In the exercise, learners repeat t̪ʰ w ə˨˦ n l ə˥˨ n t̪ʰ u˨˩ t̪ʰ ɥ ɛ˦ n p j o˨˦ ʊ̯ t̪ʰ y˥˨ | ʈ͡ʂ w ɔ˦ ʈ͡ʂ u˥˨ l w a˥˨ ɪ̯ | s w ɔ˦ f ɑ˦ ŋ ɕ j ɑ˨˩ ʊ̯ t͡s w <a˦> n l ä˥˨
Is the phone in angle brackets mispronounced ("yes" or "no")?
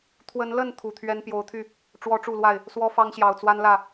no